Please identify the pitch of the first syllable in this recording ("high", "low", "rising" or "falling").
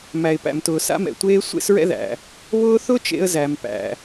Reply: low